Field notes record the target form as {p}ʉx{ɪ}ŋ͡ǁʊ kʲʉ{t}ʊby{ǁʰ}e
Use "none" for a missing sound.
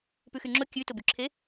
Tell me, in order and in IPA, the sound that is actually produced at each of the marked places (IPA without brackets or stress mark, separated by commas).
p, y, t, ǁʰ